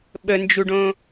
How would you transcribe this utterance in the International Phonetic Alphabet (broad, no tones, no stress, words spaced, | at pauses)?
ɓənd͡ʒuɖõ